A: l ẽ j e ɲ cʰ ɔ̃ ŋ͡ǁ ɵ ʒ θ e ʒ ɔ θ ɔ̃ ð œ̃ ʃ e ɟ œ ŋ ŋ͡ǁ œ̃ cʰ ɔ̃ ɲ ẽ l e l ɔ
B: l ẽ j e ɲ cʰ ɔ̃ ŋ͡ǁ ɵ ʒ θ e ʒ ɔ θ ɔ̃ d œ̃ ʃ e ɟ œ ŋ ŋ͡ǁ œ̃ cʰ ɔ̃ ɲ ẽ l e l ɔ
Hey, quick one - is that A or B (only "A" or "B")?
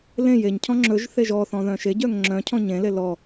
A